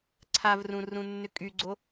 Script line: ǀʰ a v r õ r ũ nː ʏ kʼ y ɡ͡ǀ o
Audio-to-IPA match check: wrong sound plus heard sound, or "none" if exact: õ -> ũ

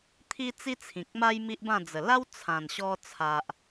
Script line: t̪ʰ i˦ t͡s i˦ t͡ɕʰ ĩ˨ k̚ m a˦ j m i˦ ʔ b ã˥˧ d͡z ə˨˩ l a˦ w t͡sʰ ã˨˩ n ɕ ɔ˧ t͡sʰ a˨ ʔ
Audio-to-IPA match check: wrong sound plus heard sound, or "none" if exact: t͡ɕʰ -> t͡sʰ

